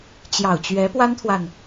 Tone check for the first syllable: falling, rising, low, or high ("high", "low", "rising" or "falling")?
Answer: low